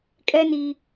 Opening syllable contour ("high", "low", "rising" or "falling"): high